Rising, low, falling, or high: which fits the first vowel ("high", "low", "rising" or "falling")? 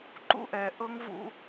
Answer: high